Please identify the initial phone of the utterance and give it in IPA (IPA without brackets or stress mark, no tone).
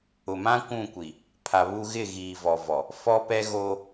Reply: ʊ